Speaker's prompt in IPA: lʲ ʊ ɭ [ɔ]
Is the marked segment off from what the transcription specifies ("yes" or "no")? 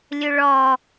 no